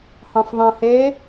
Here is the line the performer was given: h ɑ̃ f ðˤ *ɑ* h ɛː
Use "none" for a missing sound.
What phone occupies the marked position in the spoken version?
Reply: ɑ̃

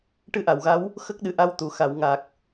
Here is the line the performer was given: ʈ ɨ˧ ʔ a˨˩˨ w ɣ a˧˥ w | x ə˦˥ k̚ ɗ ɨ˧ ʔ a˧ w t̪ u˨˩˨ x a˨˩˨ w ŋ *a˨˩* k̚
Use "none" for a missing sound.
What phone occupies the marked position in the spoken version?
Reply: a˨˩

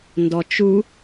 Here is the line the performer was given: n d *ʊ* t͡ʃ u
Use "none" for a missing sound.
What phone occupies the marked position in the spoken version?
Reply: ɔ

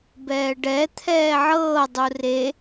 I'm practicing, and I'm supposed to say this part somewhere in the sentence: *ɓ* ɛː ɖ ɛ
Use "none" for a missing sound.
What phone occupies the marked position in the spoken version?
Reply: b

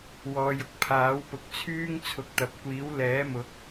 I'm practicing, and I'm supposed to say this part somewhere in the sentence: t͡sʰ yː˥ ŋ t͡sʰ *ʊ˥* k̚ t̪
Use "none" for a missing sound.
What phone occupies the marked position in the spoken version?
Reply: ʊ˨˥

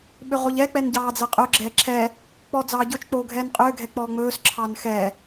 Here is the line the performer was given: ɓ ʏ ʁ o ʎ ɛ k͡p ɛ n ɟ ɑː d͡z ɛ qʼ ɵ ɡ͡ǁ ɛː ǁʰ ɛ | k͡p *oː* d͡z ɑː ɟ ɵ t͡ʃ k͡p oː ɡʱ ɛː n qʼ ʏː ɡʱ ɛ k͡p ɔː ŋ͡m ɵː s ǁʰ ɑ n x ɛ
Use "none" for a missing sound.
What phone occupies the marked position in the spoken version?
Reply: ɔː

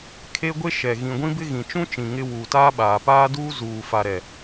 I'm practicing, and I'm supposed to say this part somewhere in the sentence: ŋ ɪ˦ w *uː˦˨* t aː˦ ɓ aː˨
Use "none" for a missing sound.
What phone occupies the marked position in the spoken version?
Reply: uː˨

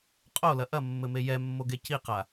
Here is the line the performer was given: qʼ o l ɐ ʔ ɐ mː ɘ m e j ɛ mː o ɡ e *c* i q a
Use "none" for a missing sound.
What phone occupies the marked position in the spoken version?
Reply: c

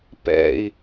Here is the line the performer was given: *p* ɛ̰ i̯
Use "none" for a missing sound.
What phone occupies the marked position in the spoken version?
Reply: p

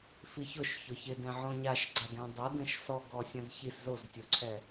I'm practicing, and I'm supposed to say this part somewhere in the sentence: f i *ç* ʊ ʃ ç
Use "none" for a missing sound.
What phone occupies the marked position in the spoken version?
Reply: ç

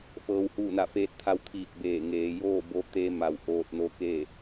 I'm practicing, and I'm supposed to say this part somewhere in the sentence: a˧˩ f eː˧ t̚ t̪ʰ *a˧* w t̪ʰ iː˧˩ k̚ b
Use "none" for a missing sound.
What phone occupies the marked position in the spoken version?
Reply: a˧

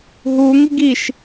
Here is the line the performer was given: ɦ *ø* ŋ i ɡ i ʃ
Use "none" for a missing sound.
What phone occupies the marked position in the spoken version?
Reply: u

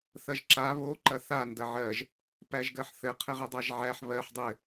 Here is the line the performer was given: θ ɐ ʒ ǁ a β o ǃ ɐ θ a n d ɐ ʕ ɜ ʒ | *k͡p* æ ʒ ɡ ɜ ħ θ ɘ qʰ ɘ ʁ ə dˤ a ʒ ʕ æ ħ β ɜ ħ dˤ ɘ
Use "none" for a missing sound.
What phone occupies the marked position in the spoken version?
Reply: p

